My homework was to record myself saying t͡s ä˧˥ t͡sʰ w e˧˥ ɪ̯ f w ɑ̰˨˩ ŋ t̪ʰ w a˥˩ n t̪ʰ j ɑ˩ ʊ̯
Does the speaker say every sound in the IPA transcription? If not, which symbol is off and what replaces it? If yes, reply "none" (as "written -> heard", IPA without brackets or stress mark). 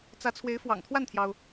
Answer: none